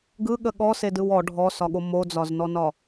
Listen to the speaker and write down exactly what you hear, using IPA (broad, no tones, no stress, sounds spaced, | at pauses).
ɡ ɯ ɠ ə ɠ ɔ s e d ɯ w ɔ ɖʱ ɔ s ɒ ɠ o m o d͡z ɒ z n ɔ n ɒ